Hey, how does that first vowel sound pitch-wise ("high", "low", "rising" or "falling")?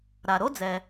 low